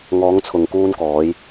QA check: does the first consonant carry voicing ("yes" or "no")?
yes